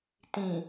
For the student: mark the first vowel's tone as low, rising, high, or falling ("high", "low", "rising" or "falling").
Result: low